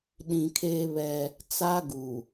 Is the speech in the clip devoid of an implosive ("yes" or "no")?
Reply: no